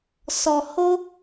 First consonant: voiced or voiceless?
voiceless